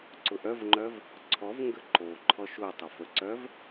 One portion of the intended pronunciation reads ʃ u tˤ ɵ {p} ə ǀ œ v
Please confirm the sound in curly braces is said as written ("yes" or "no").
no